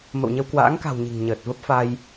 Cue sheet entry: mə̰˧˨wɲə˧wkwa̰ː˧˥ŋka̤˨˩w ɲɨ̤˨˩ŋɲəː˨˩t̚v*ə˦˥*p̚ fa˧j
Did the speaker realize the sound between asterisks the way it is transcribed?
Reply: yes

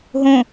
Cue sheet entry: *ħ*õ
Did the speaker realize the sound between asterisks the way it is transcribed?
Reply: no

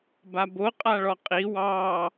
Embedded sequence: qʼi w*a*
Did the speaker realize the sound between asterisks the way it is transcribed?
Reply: no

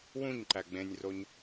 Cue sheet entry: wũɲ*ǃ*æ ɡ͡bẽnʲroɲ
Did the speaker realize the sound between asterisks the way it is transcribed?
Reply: yes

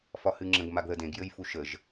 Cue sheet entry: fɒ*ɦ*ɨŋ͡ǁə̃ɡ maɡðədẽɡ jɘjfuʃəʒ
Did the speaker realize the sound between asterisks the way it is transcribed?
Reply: no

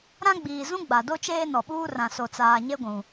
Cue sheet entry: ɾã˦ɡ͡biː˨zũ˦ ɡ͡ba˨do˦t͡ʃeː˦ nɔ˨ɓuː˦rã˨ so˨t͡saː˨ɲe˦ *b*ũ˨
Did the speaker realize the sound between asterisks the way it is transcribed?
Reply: no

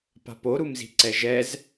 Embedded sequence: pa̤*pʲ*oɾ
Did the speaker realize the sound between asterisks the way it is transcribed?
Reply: no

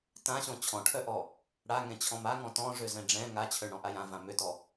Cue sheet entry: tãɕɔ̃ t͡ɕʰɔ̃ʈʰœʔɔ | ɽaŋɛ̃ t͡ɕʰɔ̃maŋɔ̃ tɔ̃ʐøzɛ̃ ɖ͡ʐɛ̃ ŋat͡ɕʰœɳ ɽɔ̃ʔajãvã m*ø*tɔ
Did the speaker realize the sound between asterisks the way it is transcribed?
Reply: yes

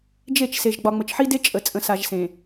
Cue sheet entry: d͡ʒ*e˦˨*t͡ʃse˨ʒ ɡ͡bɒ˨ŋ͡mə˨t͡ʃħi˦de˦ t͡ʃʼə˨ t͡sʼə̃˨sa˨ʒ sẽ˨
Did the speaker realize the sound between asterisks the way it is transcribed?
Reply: yes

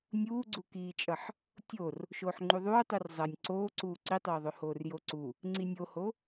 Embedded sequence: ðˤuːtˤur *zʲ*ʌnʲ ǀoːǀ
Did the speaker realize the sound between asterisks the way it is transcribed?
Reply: no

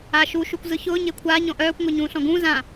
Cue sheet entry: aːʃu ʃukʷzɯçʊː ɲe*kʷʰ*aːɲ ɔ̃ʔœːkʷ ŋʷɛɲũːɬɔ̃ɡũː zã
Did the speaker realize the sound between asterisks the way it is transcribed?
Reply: yes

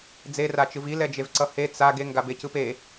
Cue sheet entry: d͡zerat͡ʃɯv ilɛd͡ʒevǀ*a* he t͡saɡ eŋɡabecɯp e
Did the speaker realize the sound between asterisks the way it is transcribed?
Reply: no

